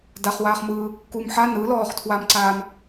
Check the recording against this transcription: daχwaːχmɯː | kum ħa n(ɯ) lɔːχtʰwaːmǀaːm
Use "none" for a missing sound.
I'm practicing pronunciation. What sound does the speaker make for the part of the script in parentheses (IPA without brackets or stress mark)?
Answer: ɯ